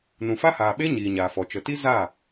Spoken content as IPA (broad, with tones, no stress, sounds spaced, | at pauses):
n ũ˨ f a˦ h aː˨ ɓ e˦ ɲ iː˨ ɲ aː˨ f ɔ˨ t͡ʃ ə˨ t i˦ z aː˦˨